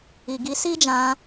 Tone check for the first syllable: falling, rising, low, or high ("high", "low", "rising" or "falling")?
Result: low